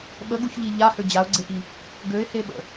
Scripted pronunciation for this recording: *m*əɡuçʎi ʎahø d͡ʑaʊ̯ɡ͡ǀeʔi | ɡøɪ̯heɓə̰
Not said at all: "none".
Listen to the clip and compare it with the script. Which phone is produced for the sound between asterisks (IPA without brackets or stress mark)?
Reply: ɓ